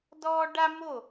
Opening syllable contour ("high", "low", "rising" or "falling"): high